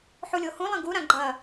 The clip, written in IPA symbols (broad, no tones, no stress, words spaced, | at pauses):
ħulʲohũlˠɐ̃ ɡu ɾãɡ͡ǃɐ